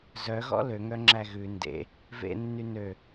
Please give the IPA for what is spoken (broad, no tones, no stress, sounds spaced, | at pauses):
z œ ɣ ɔ̰ l ø ŋ œ ŋ͡ǁ æ ɣ ʉ n d ḛ | v ḛ nː y n ø